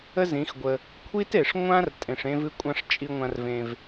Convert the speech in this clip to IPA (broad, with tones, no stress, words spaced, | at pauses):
ə˦zĩ˨˦xɡʷə˧ | kʷʰi˦te˨ʂ ŋʷã˦r tʼẽ˨ʂẽ˧ vɨ˧kʷʼã˧ʂ t͡ʃʼi˧ŋʷã˧rvẽ˧v